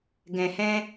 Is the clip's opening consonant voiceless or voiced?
voiced